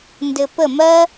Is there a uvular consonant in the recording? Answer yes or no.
no